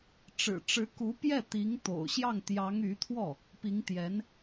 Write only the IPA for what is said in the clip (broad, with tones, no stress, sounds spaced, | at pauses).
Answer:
ʈ͡ʂ ɻ̩˨˩ ʈ͡ʂ ɻ̩˧˥ k u˧˥ p j ɛ˥˩ t̪ i˧˥ ŋ t̪ o̰˨˩ ʊ̯ ɕ j ɑ˥˩ ŋ t̪ j ɑ˧˥ ŋ y˧˥ t̪ʰ w ɔ˥˩ | p i˧˥ ŋ t̪ j ɛ˧˥ n